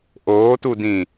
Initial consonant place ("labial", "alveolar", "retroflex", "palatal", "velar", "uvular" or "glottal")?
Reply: glottal